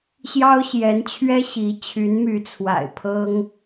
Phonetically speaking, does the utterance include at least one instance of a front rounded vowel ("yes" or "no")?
yes